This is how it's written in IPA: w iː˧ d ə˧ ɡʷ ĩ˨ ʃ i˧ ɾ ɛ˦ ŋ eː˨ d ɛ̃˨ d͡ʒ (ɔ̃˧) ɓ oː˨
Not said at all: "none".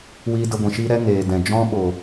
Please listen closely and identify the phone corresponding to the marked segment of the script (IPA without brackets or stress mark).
ɔ̃˦